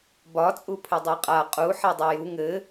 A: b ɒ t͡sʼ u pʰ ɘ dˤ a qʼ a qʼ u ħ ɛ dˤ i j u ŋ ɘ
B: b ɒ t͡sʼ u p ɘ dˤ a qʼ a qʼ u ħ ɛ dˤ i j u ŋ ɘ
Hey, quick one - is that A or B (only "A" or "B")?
A